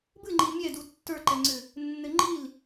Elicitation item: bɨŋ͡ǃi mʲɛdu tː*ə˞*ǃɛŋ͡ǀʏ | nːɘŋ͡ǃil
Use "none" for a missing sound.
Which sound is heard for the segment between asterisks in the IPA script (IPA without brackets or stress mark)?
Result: ə˞